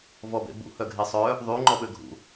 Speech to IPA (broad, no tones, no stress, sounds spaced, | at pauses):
v ɔ b ḛ b ṵ h œ ɡʱ e sˤ œ | ðˤ y ŋ͡ǃ ɔ ɓ ø ɡʱ ṵ